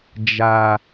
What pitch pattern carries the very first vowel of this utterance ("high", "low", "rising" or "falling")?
low